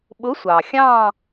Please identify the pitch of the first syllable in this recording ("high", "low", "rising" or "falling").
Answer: rising